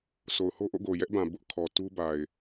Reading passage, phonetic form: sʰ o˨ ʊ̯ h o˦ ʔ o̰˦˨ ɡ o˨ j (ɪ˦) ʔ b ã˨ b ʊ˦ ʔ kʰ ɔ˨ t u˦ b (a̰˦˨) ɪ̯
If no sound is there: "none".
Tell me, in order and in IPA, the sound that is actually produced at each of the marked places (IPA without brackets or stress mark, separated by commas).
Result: ɛ˦, a˨